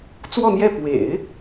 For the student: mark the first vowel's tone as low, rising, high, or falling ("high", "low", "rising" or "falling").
falling